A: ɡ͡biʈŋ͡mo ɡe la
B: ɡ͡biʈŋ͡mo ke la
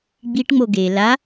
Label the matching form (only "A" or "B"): A